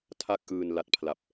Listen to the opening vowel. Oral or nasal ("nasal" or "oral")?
oral